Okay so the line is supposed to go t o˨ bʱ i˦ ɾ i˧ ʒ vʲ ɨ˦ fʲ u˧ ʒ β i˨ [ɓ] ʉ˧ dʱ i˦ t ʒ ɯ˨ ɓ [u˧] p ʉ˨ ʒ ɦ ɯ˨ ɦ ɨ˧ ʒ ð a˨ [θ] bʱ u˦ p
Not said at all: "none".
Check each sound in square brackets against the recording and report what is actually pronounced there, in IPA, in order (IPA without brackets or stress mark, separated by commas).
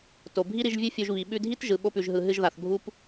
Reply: ɓ, o˧, θ